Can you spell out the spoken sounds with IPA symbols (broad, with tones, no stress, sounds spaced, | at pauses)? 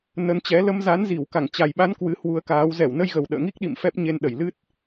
n ə˨˦ n t͡ɕ ɛ˨˦ l ə˧ m z a˨˦ n z i˧˩ w k a˧˩ ŋ t͡ɕ a˨˩ j ɓ a˨˦ n k w ɨ˨˦ h w u˧ ə̯ k aː˨˦ w z ɛ˧˩ w n ə˧ j ɣ ə˨˩ w ɗ ə̰ː˧˨ ŋ i˦˥ k̚ ɗ ḭ˧˨ m f ɛ˦˥ p̚ ɲ e˧ n ɗ ə˧˩ j l ɨ˦˥ t̚